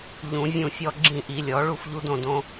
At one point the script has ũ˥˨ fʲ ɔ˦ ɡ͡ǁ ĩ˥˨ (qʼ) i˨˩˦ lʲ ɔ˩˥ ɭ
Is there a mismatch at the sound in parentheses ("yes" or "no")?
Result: yes